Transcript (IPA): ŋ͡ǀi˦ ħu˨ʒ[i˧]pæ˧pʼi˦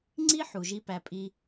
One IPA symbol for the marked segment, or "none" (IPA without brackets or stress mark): i˦